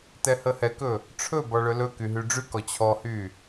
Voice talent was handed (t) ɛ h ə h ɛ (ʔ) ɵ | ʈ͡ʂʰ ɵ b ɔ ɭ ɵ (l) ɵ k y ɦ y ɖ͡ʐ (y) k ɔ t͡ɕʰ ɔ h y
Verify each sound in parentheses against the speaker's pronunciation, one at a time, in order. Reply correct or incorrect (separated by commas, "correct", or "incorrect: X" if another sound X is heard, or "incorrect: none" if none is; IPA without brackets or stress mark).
correct, incorrect: k, correct, correct